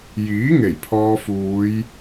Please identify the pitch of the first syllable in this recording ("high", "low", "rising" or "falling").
rising